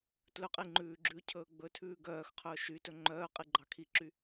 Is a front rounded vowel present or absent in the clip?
present